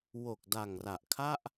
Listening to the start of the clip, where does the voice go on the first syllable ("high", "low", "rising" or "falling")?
low